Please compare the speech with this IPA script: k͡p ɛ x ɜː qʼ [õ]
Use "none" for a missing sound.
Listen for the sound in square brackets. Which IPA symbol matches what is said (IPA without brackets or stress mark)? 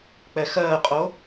o